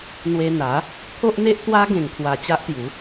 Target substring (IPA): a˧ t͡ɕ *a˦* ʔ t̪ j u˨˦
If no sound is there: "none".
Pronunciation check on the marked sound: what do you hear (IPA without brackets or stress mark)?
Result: a˦